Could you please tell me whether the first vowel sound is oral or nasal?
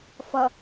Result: oral